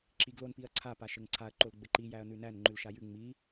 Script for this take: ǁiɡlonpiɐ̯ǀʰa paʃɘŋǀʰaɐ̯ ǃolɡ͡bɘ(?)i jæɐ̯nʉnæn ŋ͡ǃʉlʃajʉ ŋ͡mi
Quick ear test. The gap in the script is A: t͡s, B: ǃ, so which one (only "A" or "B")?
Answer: B